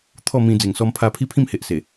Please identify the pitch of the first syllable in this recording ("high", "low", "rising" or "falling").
falling